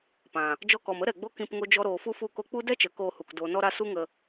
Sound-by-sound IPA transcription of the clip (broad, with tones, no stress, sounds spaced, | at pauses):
p ã˨ | d͡ʒ ɔ˧ k ɔ˨ m ə˦ ɾ ɛ˨ ɡ͡b o˦ k ĩ˧ p ŋ o˦ d͡ʒ ɔ˦ ɾ oː˧ f u˦ f u˦˨ k o˦ k͡p u˦ d ɛ˦ t͡ʃ ə˨˦ k oː˧ h u˨ k d oː˨ n ɔ˧ ɾ a˧ s u˦ ŋ ə˧